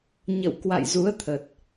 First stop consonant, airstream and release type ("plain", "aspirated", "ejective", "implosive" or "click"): plain